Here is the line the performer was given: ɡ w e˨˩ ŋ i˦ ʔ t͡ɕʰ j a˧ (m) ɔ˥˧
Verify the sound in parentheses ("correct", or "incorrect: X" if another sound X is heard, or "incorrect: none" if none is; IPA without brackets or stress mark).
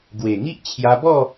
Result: incorrect: b